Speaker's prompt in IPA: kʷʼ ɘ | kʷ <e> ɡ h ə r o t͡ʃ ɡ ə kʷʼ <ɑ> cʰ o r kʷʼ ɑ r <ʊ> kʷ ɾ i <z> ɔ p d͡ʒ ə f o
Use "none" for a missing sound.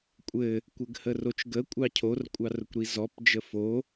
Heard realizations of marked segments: ɘ, ɑ, ʊ, z

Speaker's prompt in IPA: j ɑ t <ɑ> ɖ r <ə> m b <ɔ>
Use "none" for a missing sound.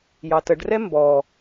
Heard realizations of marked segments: ə, ɛ, ɔ

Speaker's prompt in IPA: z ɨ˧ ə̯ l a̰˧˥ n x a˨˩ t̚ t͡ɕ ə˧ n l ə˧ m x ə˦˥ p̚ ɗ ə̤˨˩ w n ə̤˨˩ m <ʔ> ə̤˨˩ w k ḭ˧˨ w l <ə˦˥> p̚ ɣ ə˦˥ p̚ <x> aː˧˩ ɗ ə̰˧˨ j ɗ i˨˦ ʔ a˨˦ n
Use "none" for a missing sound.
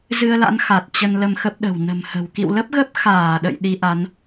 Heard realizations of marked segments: h, ə˦˥, x

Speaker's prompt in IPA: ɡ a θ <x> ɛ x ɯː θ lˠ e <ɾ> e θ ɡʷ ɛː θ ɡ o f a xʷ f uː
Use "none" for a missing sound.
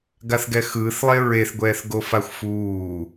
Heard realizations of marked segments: ɡ, ɹ

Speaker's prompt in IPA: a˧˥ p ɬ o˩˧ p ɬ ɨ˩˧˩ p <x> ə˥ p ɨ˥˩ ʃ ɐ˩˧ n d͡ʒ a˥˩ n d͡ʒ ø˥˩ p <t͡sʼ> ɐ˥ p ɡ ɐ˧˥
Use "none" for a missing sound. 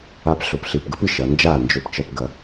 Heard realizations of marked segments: ɡ, t͡ʃ

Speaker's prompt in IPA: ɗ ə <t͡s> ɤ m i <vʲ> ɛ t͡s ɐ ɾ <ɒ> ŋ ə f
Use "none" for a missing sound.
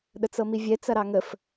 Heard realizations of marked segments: t͡s, vʲ, ɑ

